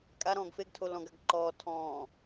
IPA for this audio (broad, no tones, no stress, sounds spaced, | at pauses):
kʼ a ɾ ɔ̃ː ɡ f e ɡ tʰ o l ɔ̃ ɡ a ɡ ǃ ɔː tʰ ɔ̃ː